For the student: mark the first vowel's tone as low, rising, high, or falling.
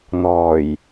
low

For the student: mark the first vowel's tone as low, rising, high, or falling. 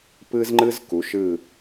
high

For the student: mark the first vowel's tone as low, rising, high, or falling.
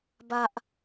high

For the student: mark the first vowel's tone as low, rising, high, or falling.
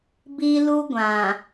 high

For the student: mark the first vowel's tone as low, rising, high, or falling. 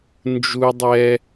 low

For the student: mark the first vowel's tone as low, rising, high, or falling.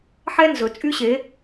high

